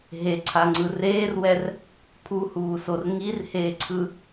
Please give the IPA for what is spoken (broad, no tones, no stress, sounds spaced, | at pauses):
ɦ e ǀʰ a ŋ͡ǀ ɯ r eː r w ɛ r | pʰ u h uː s o r ŋ i r h eː ǀʰ ɯ